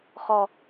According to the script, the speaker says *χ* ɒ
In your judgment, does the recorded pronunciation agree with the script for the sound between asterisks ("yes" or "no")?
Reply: yes